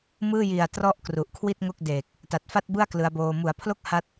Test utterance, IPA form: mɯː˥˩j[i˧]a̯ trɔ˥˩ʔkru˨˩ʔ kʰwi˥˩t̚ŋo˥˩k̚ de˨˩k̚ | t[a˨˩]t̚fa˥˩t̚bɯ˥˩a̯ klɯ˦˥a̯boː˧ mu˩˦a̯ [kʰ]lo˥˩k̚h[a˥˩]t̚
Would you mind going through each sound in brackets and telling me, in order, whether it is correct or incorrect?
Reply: incorrect, correct, incorrect, incorrect

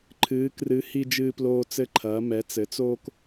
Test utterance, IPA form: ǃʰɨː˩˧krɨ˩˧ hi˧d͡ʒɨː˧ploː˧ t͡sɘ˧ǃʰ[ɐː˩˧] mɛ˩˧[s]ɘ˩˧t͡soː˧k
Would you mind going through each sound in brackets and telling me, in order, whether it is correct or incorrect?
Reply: correct, incorrect

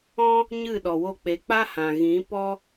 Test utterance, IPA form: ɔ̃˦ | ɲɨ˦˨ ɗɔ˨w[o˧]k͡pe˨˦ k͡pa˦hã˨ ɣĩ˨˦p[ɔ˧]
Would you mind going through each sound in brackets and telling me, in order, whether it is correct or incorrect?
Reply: correct, incorrect

